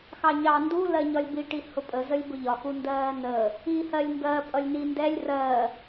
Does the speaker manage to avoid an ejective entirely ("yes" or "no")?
no